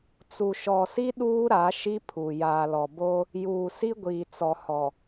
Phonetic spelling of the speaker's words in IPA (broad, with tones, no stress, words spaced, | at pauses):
t͡su˨ʃɔ˨si˦ ɗuː˦ɾa˨˦ ʃi˦pʰu˨ jaː˨lɔ˨boː˦ | juː˨si˦ɡʷiː˨ t͡sɔ˨hɔ˨